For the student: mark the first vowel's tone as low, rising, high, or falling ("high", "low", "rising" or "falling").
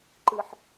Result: high